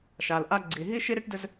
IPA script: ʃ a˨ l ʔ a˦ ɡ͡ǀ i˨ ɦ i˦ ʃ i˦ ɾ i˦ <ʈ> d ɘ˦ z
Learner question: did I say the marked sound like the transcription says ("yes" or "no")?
yes